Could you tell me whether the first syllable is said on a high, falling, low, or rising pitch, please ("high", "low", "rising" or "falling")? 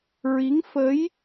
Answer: rising